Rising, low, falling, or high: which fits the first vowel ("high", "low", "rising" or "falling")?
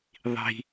high